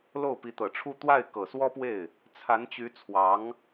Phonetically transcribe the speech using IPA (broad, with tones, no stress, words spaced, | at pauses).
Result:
lo˥˩ʊ̯pi˧˥t̪ɤ˨˩ʈ͡ʂʰu˥˧ t̪wa˥˩ɪ̯ kɤ˨˩swɔ˥pwe˥˩ɪ̯ | t͡sʰa˧˥nt͡ɕy˧˥t͡sʰwɑ˧˥ŋ